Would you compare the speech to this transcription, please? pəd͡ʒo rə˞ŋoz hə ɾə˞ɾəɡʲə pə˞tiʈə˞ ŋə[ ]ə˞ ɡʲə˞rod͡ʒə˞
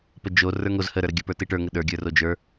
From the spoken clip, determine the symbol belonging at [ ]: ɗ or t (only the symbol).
ɗ